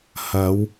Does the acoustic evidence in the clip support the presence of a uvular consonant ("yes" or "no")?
no